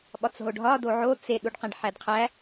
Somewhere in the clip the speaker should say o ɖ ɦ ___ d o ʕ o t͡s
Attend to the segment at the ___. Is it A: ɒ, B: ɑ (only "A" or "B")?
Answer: A